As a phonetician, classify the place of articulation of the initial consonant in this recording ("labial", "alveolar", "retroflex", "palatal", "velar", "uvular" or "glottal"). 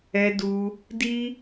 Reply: alveolar